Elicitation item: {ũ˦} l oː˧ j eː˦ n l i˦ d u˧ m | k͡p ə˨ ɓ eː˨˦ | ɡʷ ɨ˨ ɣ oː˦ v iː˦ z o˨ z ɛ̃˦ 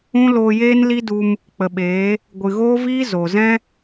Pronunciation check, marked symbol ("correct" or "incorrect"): correct